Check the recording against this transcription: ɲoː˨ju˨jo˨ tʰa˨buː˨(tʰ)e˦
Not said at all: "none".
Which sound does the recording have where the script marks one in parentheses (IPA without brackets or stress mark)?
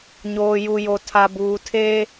tʰ